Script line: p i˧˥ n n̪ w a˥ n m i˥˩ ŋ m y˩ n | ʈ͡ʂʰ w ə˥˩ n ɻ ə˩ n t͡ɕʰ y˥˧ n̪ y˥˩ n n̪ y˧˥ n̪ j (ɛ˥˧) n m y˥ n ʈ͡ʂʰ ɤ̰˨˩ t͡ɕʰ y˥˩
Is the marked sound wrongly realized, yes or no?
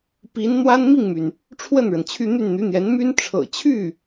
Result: yes